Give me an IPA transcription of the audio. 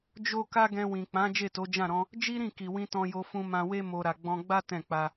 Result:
d͡ʒ o˦ k a˦ ɡ ɛ̃˧ w ĩ˨ k͡p ã˨˦ d͡ʒ e˦˨ t o˨˦ d͡ʒ ã˦˨ ɾ ɔ̃˧ | d͡ʒ i˦ ɾ ĩ˦˨ k i˨ w ĩ˧ t ɔ̃˧ j o˧ f ũ˧ m ã˧ w e˦ m o˧ ɾ a˨ ɡ͡b ɔ̃˧ ɡ͡b a˦ t ɛ̃˦˨ k͡p a˧

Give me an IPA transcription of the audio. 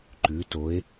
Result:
ǃ ʉ˩˧ t o˩˧ e̯

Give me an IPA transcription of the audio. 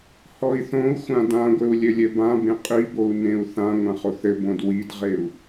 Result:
h ɔ i̯ θ õ u̯ xʷ ã d ã ɡʷ ɘ u̯ lʲ ɘ lʲ ɘ b ã b ẽ qʼ i b o u̯ n ẽ u̯ θ ã ŋʷ ã χ o θ ɘ b õ d w i d ʁ e u̯

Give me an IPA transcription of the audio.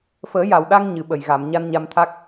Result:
f əː˨˩˦ j a˨˩˨ w ɗ a˧ ŋ ɲ ɨ˨˩˨ ɓ ə˨˩ j ɣ a˨˩˨ m ɲ a˧ n ɲ a˧ m t̪ʰ a˦˥ k̚

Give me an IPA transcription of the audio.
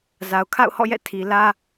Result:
z a˨ ʊ̯ kʰ a̰˦˨ ʊ̯ h ɔ̰˦˨ j ɛ̰˦˨ tʰ i˨ l ä˦

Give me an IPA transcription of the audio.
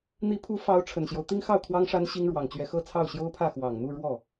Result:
n̪ i˧˥ pʰ u˧˥ f ɑ˧˥ ʊ̯ ʈ͡ʂʰ ə˨˩ n ɕ j o˦ ʊ̯ t̪ i˥ ŋ x ɑ˥˩ ʊ̯ kʰ w ɑ˥ ŋ ʂ a˥ n ɕ i˥ ŋ ɻ w ɑ˨˩ ŋ t͡ɕ ɥ ɛ˧˥ x ɤ˥˧ t͡sʰ ɑ˥˩ ʊ̯ ɕ j o˥ ʊ̯ pʰ ä˥˩ x w ɑ˨˩ ŋ n̪ u˥˧ ɻ w ɔ˥˩

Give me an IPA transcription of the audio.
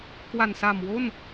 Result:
k w a˨˩ n s a˨˩ m w o˥˩ n

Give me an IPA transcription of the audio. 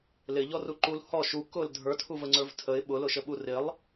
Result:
l ɪ ʎ ɔ r u ǃ u l h ɔ ʃ u k ʊ l dʱ ə˞ tʰ u v ə ŋ͡ǀ ə˞ v tʰ ə ɪ̯ ɓ ʊ l ʊ ʃ ə ɓ u r ɪ lˠ

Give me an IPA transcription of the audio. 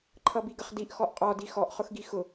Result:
ǃʰ ʌ b i ɡ ə χ d i ʔ x ɔ ʔ qʼ ɔ d i x ɔ ʔ χ ʊ x ɡ i x ʊ

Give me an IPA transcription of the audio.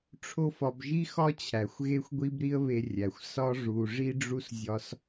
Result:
ʈ͡ʂʰ o˥ f ɒ˧ b ʒ i˥ x ɒ˥ t͡ɕʰ æ˩ xʷ ɣ e˥ xʷ ɡʷ i˥ b ɾ i˥ ə̯ β e˧ rʲ æ˩ xʷ s ɒ˥ ʐ u˧ ʐ i˥ ɖ͡ʐ u˥ s zʲ ɒ˧ s

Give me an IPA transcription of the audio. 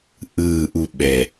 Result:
ʔ ɯː˥˧ ʔ u˥˧ ɓ ɛ˧˩

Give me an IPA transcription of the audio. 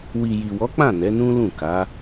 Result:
w i˨ j i˨ w ɔ˨˦ k͡p ã˦˨ n ɛ˨˦ n ũ˦ l ũ˦˨ k a˨˦

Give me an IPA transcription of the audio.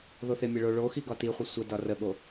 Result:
ð o θ e mʲ ə ɭ o ɭ o x i ɡ ɒ t i χʷ ə sʷ ə d ɒ r ə ɠ o

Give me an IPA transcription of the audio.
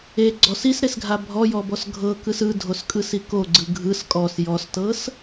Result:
e ɡ͡ǀ ɔ s i s ɾ e s ɡʱ a bʱ ɔ j ɔ b ɔ s ɡʱ ɤ k ɯ s ɯ dʱ o s kʼ ɯ s i k o ɡ͡ǀ ɯ ɡʱ ɯ s kʼ ɔ s j ɔ s t ɤ s

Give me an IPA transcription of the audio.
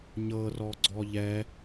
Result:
ɲ ɤ r ɔ ɡ͡ǀ ɔ ʎ ɛ

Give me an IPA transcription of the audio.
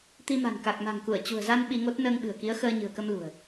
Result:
t̪ i˧ m a̤˨˩ n k a˨˩ k̚ m a̤˨˩ ŋ k u˧˩ ə̯ t͡ɕ ṳ˨˩ ə̯ z a˧ n ɓ i˧ ŋ o˦˥ t̚ n əː˧ ŋ ɓ ɨ̤˨˩ ə̯ k i˨˦ ə̯ x əː˧ ɲ ɨ̤˨˩ ə̯ k ə˧ m l ṳ˨˩ ə̯

